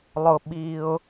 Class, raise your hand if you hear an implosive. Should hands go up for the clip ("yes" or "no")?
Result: yes